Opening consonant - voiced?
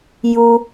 yes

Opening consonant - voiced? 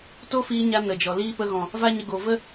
no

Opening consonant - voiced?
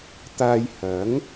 no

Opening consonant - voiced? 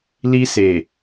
yes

